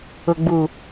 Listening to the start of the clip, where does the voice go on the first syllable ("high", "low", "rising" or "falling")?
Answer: low